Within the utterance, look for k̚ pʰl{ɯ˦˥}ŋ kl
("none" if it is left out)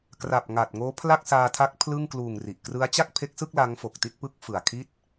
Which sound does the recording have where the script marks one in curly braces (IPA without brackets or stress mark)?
ɯ˥˩